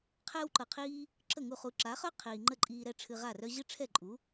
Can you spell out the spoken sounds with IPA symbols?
qʰ ɛː˥ w ǃ ɤ˩ qʰ iː˥ | ǁ ə˥˩ ŋ u˥˩ χ u˧ ǁ a˩˥ χ œ˥ qʰ iː˩ ŋ͡ǃ ə˥˩ ǃʼ iː˧ ɾ ɛ˥ ʈ͡ʂʰ ɨ˧ ʁ a˥˩ r œ˥ ʑ ɨ˥ ʈ͡ʂʰ ɛ˥˩ ǃʼ u˩˥

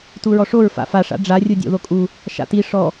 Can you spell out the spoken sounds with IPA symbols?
t u ɹ ɔ ʂ o ɹ f a̰ f a ʂ a̰ ɖ͡ʐ a rʲ u dʲ o̰ ð o kʼ u | ʃ a̰ t i ʂ ɔ

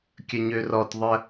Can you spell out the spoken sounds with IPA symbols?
kʲ ə ɲ ø r ɔ t ðˤ ə

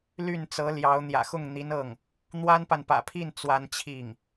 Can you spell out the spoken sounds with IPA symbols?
l y˥˩ n t͡s ɤ˧˥ l j ɑ˧˥ ʊ̯ n̪ j ä̰˨˩ x ʊ˥˩ ŋ n̪ i˧˥ n ɤ˥˩ ŋ | n̪ w a˥ n p a˨ n p ä̰˨˩ pʰ i˥˩ n t͡s w a˥ n t͡ɕʰ i˥˩ ŋ

